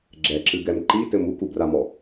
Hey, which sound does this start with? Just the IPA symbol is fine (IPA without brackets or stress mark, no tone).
ɡ͡ǁ